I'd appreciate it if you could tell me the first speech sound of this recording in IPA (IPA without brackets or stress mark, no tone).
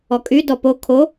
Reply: ɔ